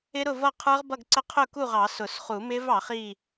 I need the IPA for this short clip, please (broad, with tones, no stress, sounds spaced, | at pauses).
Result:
ɪ˦˥ ɾ ʊ˥˨ v ʌ˥˨ qʰ ə˞˦˥ ʁ b ʌ˥˨ ɡ ǀ ə˦˥ qʰ ʊ˥˨ k u˥˨ ʁ ɑ˨˩˦ s ʊ˨˩˦ s χ u˨˩˦ m ɪ˦˥ v ɑ˨˩˦ χ i˥˨